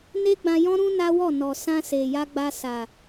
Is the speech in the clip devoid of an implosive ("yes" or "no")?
yes